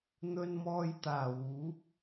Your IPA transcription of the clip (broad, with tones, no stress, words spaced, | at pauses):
n̪ɵ˧nmɔː˧jt̪aː˨˩wuː˨˥p̚